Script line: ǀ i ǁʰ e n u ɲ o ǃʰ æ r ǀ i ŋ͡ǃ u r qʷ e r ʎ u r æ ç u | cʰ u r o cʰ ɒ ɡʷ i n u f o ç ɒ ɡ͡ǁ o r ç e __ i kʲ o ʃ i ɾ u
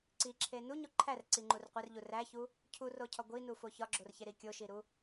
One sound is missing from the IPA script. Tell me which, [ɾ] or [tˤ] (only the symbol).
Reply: ɾ